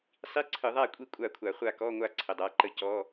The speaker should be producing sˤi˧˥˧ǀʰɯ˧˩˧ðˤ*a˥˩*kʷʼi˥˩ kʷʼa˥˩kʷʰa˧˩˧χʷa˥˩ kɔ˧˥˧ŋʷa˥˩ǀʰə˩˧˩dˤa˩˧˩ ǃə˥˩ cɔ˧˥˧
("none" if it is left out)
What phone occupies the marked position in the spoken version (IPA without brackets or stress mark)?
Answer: a˥˩